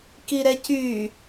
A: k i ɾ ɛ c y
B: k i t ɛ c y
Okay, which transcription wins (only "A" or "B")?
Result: A